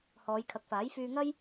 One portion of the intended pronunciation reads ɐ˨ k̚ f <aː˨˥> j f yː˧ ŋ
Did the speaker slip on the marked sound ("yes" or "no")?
no